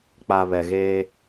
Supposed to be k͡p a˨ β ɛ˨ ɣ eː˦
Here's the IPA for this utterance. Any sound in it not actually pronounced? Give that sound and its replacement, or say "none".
none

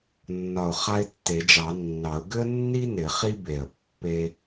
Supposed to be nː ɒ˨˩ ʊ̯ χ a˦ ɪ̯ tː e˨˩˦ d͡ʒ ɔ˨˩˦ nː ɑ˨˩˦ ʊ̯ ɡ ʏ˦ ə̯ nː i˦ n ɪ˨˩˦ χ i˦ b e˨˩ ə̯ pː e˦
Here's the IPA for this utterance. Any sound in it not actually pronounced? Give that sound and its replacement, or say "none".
ɔ˨˩˦ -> ɑ˨˩˦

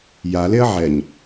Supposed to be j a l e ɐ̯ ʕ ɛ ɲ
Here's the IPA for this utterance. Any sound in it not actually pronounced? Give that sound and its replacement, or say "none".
none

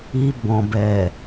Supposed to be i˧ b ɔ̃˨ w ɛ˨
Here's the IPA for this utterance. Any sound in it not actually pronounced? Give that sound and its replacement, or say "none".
w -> b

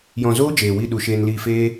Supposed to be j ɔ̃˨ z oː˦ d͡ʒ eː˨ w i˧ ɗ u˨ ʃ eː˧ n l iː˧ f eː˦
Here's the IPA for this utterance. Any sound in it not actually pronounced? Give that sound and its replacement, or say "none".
none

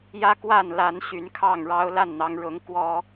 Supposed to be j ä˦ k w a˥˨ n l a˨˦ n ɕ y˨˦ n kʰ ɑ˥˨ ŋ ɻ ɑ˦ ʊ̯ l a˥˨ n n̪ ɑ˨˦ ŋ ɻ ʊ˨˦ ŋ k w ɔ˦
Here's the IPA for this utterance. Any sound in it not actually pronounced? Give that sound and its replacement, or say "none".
none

